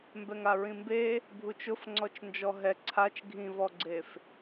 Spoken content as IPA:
mbɛŋaɹĩmbe | bʱut͡ʃʊfŋ͡ǀɔt͡ʃnd͡ʒɔ ɦɛ ǀʰat͡ʃ ɡʱĩvɔɡ͡ǀef

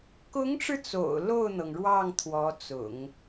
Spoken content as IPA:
kʊ˧˥ŋʈ͡ʂɻ̩˧ t͡so̰˨˩ʊ̯ lo˥˩ʊ̯n̪ɤ˩ŋɻwɑ˥˩ŋ t̪ʰwɔ˧˥t͡sʊ̰˨˩˦ŋ

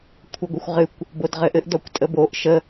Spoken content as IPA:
kʷʰɘɡʷɘxʷʁɨkʷ | bodʁɘʔɘʔ dɔkʷtʼəboʔ ʃə

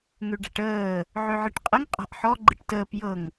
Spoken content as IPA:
ŋøɖa̤ʈəː | ʕøʕɨʈqʼəŋ qʼa̤ʔħɔ ɡ͡ǃɨʈtəːp jɤŋ

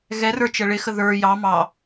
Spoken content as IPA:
ɣɛrə˞ t͡ʃəɭɪxə ðə˞ jɑ mɑ

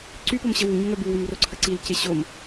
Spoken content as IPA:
ǀypom ɕəwuɲə ŋœbuwym roǀʰəǀilce ɕom

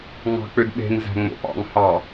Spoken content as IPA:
ŋɑ̤k͡pødɓe̤ŋ zæ̤ŋ͡mo̰pɑ̰ŋ hɑ

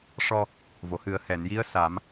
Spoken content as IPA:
ʂɔ˧ | vo˨˩˨hɨ˨˩˦ə̯ hɛ˨˩˨nji˧˥ə̯ sa˨˩˦m

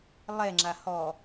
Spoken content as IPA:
lˠɛŋ͡ǁa hɔ

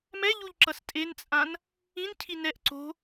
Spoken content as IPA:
mɛʎuʎǁʌs tʼent͡sʼãn | ĩncʰi nɛʔ ǀo̤

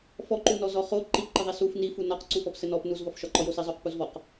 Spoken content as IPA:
fɔǃunɔzɔ χo ǃipǃɘðˤi suf nifu nɒqǀufɔp sɘnɔp nuzvɒfʃɒǃɔ josizˤoq puzvɔq

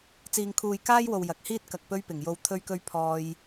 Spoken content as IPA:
t͡siː˨ŋkʰuː˨jkaː˥jwo˨w jɐ˨k̚ hiː˥t̚kɐ˨k̚ pɵ˥ɥpɪ˨˩ŋjo˧w t̪ʰɵ˥ɥkɵ˥ɥpʰɔː˧j

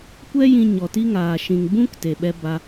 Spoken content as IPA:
kʷɛ˦jĩ˧ ɲɔ˨ti˦ŋaː˨ ʃĩ˨ŋbũ˦k te˨ɓɛ˧ba˧

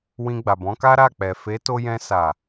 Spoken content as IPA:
wĩ˧ɡ͡ba˨bɔ̃˨˦ka˦ ɾa˦˨k͡pɛ˨ fe˨˦to˧jɛ̃˧ sa˨

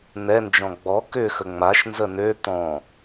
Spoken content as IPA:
nɛ nd͡ʒɔ̃ɡ͡bɔ kʏ xəŋ͡maʃ nzənø t̪ɔ̃

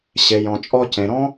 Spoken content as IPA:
ɕe˨ jɔ̃˨t͡ʃʼɔ˧cẽ˨ ɾɔ̃˦

